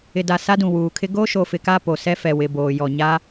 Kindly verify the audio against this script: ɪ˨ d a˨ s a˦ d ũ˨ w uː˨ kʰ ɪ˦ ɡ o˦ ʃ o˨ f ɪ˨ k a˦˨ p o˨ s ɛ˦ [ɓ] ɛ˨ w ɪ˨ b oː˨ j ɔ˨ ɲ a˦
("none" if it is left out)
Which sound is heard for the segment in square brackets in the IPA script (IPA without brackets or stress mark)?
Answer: f